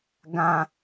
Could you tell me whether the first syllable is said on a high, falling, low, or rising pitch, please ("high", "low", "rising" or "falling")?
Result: low